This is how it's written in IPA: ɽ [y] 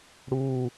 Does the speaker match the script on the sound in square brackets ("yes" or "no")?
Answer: no